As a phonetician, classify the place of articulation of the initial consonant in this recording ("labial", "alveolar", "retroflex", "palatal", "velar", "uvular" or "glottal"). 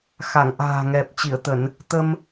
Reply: velar